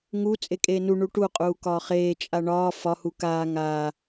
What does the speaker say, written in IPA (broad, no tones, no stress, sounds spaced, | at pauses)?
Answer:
ŋ u t͡sʼ e kʼ eː n u ɳ u ʈ u qʼ uː k ɒː χ eː t͡ʃʼ a ɳ ɒː f ɒ h u k aː ŋ aː